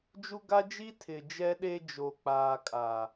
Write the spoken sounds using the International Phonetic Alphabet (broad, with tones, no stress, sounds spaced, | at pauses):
d͡ʒ u˦ ɡ a˦ d͡ʒ i˦ tʰ ɪ˨ d͡ʒ ɛ˦ ɗ e˦ d͡ʒ o˨ k͡p aː˨ kʼ a˨